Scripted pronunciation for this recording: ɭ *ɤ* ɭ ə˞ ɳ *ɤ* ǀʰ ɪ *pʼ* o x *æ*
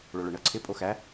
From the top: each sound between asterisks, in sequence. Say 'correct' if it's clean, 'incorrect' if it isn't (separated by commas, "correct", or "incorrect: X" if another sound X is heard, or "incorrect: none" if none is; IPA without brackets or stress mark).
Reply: incorrect: o, correct, correct, correct